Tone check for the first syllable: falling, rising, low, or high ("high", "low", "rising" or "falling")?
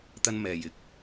high